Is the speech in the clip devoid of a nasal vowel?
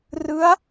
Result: yes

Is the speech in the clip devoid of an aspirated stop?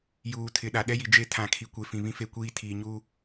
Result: no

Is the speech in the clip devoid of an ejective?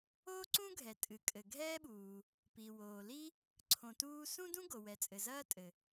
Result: no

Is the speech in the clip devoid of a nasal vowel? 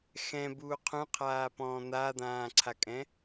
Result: no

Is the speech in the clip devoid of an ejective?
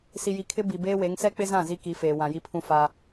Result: yes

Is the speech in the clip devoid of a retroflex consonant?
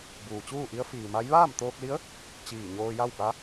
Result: yes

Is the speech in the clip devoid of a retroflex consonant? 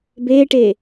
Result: no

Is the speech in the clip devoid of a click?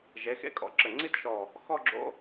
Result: no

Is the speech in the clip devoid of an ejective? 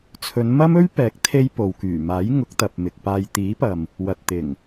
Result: yes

